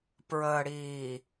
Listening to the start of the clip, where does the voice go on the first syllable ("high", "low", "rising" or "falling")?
low